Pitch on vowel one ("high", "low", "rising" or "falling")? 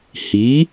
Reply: rising